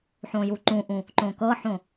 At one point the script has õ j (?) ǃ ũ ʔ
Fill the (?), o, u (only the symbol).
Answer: u